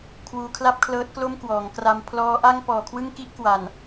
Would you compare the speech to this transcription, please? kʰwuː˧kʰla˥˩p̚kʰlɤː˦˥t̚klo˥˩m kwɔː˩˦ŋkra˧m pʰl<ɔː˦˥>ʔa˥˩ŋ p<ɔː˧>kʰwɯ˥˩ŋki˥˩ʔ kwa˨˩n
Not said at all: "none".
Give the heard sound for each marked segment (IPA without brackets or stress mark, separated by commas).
ɔː˦˥, ɔː˨˩